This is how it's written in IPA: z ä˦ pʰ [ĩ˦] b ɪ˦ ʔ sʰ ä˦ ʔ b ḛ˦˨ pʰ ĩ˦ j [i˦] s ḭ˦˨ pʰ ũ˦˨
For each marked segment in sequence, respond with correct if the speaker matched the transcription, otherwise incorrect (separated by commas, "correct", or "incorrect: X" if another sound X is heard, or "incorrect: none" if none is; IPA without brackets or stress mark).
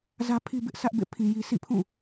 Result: incorrect: i˦, correct